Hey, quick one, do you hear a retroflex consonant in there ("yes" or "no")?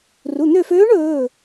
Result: yes